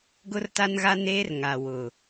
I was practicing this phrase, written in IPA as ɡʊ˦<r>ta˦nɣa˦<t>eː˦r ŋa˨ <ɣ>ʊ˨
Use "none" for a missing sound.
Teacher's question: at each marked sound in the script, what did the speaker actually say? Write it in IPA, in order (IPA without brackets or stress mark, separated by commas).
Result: r, n, w